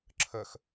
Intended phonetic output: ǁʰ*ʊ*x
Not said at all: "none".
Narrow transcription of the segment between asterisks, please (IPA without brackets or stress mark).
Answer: ə